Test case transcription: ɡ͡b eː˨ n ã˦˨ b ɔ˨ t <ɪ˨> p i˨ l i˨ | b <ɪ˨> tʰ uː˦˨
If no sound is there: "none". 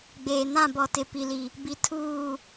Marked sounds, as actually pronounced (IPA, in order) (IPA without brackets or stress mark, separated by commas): ɪ˨, i˨